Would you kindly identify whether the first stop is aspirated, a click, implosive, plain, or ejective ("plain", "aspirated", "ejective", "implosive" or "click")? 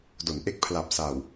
plain